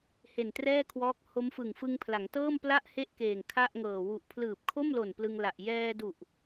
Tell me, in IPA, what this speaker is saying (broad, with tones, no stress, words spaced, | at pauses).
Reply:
he˨˩ntrɛː˥˩kʰwɔː˦˥k̚ ho˦˥mfɯ˨˩ŋfɯ˧ŋ pʰla˩˦ŋtɤː˥˩mpla˥˩ʔ he˥˩ʔ keː˨˩ŋ kʰa˥˩ʔŋɤː˨˩ wu˨˩ʔpʰlɯː˨˩p̚kʰo˥˩mlo˨˩n plɯ˧ŋla˨˩ʔ jɛː˧du˨˩ʔ